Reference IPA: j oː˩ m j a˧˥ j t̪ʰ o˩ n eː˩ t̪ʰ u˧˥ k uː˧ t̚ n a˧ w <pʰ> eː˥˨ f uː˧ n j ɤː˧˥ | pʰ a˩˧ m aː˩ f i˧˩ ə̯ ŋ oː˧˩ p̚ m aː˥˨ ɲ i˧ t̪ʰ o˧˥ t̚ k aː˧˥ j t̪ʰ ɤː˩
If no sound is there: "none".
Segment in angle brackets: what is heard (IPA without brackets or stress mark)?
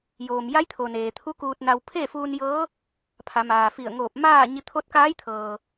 pʰ